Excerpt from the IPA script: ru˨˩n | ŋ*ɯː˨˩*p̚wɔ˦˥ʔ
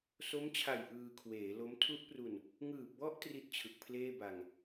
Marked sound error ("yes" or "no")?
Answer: no